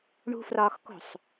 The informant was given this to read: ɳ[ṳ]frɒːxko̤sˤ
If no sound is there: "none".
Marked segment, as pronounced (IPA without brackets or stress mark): ṳ